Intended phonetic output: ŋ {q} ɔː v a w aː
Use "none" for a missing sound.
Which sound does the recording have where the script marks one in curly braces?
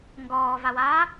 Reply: ɡ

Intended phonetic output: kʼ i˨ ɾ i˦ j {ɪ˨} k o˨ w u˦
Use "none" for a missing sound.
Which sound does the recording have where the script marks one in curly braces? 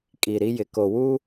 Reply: ɪ˨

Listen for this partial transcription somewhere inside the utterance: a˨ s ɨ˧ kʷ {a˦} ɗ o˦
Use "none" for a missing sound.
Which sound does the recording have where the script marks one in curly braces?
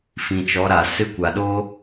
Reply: a˨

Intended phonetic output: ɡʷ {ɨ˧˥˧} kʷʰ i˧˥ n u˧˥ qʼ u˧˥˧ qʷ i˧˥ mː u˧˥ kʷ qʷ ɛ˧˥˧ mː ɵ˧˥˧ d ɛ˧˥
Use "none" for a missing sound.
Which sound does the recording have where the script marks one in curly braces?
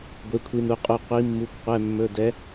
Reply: e˧˥˧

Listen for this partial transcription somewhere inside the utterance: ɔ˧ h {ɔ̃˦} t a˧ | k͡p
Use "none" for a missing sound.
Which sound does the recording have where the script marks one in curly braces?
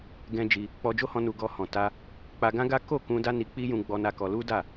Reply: ɔ̃˨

